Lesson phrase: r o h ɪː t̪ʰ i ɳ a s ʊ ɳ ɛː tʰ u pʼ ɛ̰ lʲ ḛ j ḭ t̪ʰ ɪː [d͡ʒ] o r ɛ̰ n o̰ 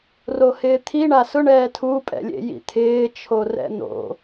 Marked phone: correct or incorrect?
incorrect